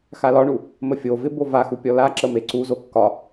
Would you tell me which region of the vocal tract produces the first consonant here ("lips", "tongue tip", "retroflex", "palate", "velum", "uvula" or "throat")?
velum